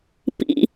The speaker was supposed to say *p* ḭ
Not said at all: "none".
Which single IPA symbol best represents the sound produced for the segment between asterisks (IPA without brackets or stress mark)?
p